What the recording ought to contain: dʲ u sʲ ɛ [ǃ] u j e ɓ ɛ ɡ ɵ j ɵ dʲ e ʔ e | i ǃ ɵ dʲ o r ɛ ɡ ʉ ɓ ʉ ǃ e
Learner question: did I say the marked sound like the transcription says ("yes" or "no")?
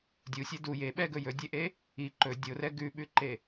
no